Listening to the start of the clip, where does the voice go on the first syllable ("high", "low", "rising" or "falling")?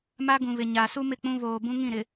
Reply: high